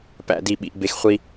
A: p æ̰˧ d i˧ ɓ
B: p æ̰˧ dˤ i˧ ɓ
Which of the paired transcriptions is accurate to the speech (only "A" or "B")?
A